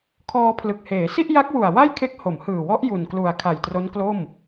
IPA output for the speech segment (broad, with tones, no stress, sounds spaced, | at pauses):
kʰ ɔː˧ pʰ l ɯ˨˩ k̚ h eː˩˦ s i˥˩ ʔ j a˦˥ k̚ w u˨˩ a̯ w a˥˩ j kʰ e˦˥ k̚ h o˩˦ m h ɯː˨˩ w ɔ˦˥ ʔ j u˨˩ n k l u˨˩ a̯ kʰ a˨˩ j t r o˦˥ n k l o˥˩ m